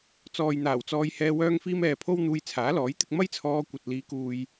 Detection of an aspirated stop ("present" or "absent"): present